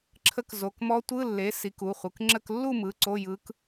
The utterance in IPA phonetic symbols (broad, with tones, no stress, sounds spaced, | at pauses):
ǁʰ ə˧˥ k z o˩˧˩ k m ɔ˧˥ tʷ ɯ˧˥˧ lː e˩˥ s i˩˥ k u˩˧˩ χʷ ɯ˩˧˩ k ŋ͡ǁ ə˥˧ k lː u˥˧ m ɯ˩˧˩ ǀ o˧˥˧ j ɯ˧˥ k